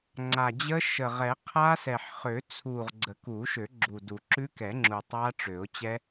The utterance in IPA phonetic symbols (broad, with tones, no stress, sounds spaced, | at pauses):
ŋ͡ǀ a˨˩ d͡ʑ ə˦˥ ʃ ə˨˩ ʁ ɛ˨˩˦ qʰ a˦˥ s ɛ˨˩ ħ χ ø˨˩˦ t͡sʰ u˨˩ ʁ ɡ͡ǀ ə˨˩˦ k u˨˩˦ ʃ ø˨˩˦ ɡ͡ǁ u˨˩ d u˨˩˦ ǁ ʉ˦˥ k ɛ˨˩˦ ŋ͡ǁ u˨˩ tˤ a˦˥ ʈ͡ʂ ø˨˩˦ ʊ̯ t͡ɕ ɛ˦˥